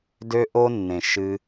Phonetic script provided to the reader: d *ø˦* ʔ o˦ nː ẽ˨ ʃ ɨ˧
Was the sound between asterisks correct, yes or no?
yes